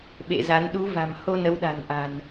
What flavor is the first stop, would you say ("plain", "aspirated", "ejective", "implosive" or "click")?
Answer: implosive